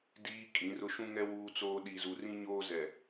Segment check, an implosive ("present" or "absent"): present